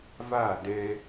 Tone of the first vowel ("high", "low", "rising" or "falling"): falling